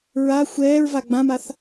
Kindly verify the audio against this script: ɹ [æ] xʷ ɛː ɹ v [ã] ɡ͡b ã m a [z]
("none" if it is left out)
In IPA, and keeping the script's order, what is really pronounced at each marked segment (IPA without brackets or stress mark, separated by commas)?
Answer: a, a, θ